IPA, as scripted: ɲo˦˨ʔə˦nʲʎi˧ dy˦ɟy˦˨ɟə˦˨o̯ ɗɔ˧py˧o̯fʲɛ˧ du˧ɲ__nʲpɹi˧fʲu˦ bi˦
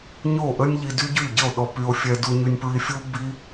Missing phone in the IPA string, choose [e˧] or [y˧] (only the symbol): y˧